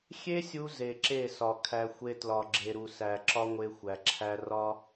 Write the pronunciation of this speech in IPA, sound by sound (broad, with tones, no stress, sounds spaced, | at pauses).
xʲ e˦ sʲ u˧ z e˨ ǁ e˦˨ s ɒ˨ kʰ æ˧ xʷ e˦ t l ɒ˨ ɡ͡ǁ e˨ ɾ u˨ s æ˨ ǁ ɒ˦ ŋʷ e˧ xʷ æ˨ ǁʰ æ˦ r ɒ˦